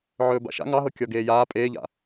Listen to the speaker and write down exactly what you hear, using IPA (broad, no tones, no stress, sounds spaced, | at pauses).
ʕ ɵː b a̰ ʃ a̰ ŋ ɑ ɦ ɤ kʲ ɔ ɡ eː j aː pʼ eː ʎ a̰